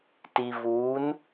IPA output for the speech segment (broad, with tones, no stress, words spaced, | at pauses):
ti˨vuː˨˦n